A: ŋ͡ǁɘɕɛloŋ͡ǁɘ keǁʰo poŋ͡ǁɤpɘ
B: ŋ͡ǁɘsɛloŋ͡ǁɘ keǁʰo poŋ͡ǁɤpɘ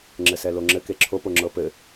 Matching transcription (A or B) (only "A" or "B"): B